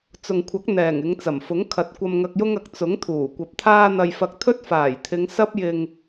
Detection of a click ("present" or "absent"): absent